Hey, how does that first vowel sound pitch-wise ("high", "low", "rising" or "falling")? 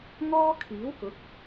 high